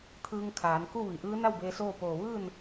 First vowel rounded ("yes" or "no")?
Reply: no